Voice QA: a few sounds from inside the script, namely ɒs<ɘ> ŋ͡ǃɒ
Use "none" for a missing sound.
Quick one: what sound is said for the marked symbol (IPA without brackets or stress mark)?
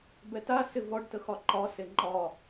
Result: e